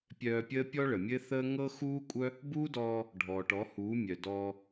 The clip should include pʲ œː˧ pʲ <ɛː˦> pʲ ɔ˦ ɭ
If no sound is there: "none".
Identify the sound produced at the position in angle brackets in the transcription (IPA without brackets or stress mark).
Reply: əː˦